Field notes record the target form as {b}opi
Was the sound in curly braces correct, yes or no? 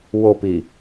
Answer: no